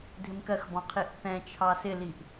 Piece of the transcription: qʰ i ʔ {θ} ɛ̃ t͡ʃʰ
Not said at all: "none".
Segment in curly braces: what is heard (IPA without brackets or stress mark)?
θ